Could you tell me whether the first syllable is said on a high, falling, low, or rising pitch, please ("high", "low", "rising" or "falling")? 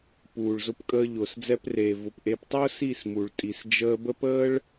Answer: low